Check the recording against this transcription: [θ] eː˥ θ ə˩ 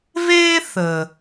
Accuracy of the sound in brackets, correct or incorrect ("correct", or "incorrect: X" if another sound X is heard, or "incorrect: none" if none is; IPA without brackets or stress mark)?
incorrect: v